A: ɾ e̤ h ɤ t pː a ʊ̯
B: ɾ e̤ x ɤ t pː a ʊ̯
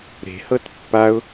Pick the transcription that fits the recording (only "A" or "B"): A